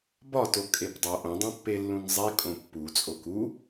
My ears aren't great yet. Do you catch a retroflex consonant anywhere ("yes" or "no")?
no